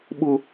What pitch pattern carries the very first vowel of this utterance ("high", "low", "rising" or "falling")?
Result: high